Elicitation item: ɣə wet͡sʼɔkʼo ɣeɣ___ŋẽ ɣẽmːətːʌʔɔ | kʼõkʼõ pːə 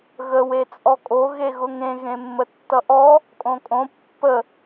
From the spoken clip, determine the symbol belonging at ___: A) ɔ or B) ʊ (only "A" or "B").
B